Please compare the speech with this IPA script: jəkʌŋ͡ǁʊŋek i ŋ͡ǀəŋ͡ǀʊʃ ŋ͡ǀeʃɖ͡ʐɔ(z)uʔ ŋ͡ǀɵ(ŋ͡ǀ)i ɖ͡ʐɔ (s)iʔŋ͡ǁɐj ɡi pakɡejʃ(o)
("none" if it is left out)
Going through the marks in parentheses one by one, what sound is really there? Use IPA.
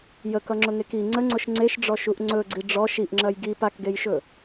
ʃ, ɡ͡ǀ, ʃ, ɵ

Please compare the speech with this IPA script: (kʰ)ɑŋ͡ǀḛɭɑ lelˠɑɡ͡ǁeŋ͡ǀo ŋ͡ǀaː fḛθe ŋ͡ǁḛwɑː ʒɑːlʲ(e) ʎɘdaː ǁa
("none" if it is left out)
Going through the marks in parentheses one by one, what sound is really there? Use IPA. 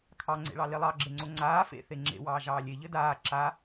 kʰ, e

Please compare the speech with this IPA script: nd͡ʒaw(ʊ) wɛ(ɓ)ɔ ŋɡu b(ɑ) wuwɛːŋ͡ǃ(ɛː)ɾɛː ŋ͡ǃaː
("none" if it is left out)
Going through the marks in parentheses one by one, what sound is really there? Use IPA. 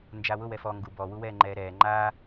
ʊ, f, ɔ, ɛː

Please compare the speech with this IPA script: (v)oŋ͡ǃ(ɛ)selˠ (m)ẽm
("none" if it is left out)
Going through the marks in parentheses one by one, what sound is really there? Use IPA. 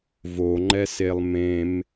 v, ɛ, m

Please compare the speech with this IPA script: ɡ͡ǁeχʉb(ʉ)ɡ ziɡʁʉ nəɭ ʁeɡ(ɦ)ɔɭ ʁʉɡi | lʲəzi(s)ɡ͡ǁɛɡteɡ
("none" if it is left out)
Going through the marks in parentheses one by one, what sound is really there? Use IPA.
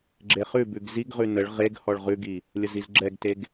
ʉ, h, z

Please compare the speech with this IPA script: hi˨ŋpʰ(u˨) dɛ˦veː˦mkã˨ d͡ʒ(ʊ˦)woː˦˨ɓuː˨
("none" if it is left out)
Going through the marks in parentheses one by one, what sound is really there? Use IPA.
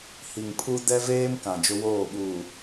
u˦, ʊ˦

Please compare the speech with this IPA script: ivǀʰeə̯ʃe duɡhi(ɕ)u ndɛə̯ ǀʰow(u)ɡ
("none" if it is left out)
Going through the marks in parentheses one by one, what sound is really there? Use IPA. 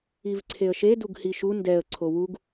ʃ, u

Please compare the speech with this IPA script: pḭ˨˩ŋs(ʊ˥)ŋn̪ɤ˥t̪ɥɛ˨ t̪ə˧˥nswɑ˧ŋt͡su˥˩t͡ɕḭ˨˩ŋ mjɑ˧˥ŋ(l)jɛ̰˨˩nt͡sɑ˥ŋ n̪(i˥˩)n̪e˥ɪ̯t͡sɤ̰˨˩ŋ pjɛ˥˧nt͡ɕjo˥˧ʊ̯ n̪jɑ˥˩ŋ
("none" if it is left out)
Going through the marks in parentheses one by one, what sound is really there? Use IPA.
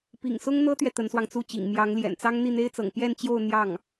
ʊ˥, l, i˥˩

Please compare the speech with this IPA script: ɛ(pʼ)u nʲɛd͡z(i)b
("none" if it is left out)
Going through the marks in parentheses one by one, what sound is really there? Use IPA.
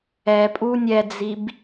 pʼ, i

